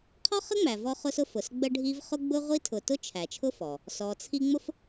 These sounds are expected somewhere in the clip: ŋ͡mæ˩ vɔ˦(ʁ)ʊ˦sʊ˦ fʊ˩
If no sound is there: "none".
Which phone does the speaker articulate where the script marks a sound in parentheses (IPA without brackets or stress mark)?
χ